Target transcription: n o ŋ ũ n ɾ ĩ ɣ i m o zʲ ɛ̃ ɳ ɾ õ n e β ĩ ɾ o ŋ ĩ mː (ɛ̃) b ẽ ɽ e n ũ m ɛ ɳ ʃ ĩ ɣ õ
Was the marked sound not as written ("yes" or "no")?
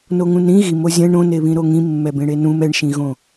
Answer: yes